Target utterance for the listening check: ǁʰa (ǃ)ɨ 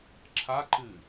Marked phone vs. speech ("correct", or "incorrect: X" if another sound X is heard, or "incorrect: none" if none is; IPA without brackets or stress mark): correct